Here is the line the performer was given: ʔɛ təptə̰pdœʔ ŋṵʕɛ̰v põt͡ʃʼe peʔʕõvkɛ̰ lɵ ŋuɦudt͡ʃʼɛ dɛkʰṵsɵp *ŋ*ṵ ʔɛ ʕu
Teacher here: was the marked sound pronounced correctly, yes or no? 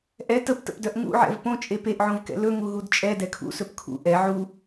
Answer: no